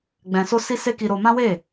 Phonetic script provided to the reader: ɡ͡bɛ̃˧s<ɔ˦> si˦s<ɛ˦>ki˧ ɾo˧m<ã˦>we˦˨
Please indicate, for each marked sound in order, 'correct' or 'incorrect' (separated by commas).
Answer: incorrect, incorrect, correct